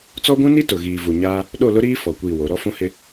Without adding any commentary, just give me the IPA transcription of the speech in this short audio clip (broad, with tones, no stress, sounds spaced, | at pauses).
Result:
t͡s ɔ˦ ɡʷ ũ˦ n i˦ t ʊ˨ ɣ iː˨ v u˨ ɲ aː˦ | ɗ o˦˨ l ʊ˦ ɾ iː˦ f ɔ˨ kʷ i˦˨ w o˨˦ ɾ ɔ˦ f ũ˦ h ɪ˦